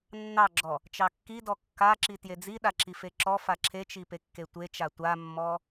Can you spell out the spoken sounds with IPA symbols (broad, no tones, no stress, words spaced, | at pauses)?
nːɑɡ͡ǁɔ | t͡ʃɑkːidɔ kːaǁi tjed͡ziɗa ǁifeǁɔfa ǁʰet͡ʃi pekːetʷet͡ʃa tʷamːɔ